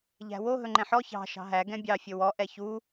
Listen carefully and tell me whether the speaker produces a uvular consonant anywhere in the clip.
no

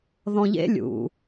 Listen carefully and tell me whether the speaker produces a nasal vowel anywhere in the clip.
yes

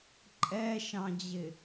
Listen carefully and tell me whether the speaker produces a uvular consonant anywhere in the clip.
no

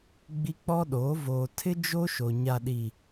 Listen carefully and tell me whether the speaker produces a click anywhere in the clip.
no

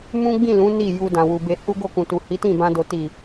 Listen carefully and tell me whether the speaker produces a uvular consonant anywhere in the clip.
no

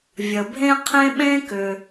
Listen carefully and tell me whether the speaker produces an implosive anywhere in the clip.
yes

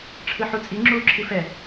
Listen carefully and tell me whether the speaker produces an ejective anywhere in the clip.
yes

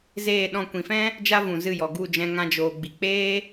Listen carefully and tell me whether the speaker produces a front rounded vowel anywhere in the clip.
no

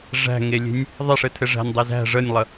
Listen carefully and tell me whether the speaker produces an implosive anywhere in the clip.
no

